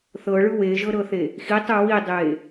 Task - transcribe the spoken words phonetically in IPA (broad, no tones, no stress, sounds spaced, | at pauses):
θ ɤ ɭ ɯ w e ʒ ɤ ɾ ɤ θ e | x i tˤ ɯ w i dˤ e